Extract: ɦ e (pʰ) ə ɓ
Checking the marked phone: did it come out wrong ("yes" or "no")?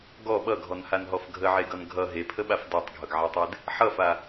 no